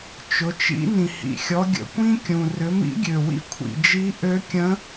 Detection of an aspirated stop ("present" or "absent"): present